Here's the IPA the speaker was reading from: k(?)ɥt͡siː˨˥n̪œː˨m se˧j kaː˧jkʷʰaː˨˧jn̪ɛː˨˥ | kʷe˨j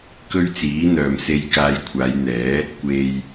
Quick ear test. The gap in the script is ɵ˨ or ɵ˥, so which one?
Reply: ɵ˥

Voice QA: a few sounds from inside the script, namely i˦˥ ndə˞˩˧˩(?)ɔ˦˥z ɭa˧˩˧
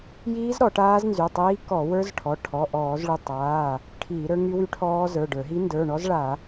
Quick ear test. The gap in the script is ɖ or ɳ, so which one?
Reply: ɳ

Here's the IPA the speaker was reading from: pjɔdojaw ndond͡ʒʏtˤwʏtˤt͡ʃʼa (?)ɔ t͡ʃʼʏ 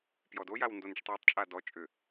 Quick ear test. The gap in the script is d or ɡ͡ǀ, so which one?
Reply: d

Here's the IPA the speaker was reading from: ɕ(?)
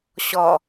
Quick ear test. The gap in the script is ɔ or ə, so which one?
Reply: ɔ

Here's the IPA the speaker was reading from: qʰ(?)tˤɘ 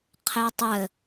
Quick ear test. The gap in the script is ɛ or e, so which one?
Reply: e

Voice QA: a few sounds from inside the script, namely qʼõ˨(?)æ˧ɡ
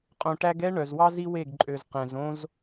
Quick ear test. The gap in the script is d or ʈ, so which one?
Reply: ʈ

